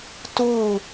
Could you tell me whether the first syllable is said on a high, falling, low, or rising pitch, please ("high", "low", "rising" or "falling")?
falling